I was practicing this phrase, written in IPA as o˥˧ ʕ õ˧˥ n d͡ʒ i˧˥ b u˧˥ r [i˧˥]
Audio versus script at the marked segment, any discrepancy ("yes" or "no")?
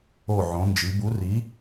no